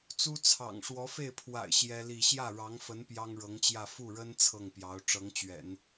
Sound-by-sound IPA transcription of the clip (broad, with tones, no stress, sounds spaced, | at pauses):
t͡s u˥ t͡sʰ ɑ̰˨˩ ŋ ʂ w ɔ˧˥ f e˥˩ ɪ̯ pʰ w a̰˨˩ ɪ̯ ɕ j ɛ˥ l i˥˧ ɕ j ä˥˩ ɻ ɑ˧˥ ŋ f ə˧˥ n p j ɑ˥ ŋ ɻ ɤ˧˥ ŋ t͡ɕ j ä˥˧ f u˥˩ ɻ ə˥ n t͡sʰ ɤ˥˩ ŋ p j ɑ˧˥ ʊ̯ ʈ͡ʂ ɤ˧˥ ŋ t͡ɕ ɥ ɛ̰˨˩˦ n